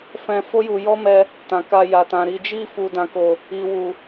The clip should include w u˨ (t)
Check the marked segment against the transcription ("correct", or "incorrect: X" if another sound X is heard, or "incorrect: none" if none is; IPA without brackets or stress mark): incorrect: none